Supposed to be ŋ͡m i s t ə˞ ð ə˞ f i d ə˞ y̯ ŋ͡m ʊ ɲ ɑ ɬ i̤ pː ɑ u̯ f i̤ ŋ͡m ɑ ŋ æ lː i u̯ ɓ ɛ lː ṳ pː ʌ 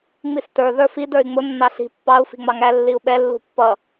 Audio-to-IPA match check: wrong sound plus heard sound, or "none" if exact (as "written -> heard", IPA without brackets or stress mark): ɲ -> nː